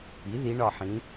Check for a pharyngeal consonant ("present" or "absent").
present